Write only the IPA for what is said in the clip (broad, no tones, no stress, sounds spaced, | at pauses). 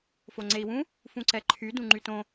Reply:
f o ŋ͡ǀ e i̯ w ũ | f ũ ǀ ɛ ǃʰ y d ũ ŋ͡ǃ y t õ